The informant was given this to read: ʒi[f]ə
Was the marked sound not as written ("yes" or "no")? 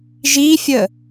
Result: yes